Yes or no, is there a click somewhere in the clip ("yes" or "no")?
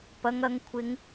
no